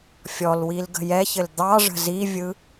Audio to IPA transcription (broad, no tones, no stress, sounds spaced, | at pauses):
fʲ ɔ l w i l ɡ ə̤ j ɛ ç ɘ l d̪ ɑ ʐ ə̤ z i vʲ ɯ